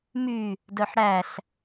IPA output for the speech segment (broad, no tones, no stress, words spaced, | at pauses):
my | dœħɽæɬ